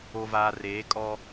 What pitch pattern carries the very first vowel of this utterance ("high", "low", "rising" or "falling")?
low